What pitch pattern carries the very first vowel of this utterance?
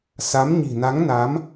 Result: rising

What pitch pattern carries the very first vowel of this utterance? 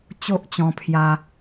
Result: high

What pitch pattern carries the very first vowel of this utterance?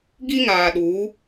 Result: high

